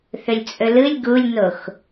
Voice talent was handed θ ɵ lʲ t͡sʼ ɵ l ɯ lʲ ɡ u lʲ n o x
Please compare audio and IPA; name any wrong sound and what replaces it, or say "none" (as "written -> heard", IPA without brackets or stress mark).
none